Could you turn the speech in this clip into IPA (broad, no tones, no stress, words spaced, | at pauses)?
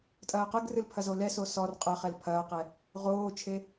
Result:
tʼɐːqɘɡrɨl pʰɐzolɛso sɔr qʼɐχɛl pʰɐːqɛ | ʁoːt͡ʃʰe